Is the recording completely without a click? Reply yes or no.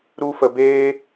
yes